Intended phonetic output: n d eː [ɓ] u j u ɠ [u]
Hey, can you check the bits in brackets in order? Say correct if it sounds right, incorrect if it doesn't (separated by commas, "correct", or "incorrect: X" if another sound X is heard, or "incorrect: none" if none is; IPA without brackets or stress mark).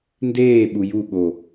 correct, incorrect: o